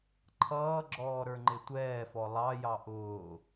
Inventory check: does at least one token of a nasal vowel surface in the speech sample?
no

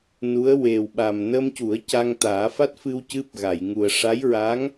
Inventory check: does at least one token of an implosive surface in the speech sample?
yes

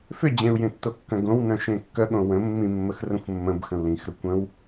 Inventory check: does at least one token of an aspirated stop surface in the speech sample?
no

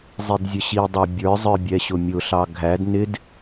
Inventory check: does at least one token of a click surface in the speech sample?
no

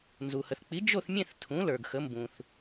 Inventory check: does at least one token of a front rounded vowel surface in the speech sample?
no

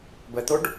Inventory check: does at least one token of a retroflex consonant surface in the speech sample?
yes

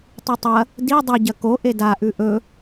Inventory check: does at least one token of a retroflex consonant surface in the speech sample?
no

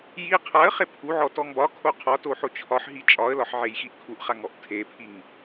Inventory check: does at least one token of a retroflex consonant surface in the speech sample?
no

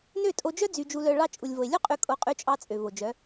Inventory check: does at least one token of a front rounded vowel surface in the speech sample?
yes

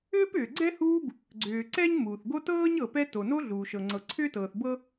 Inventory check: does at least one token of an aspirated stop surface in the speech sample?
yes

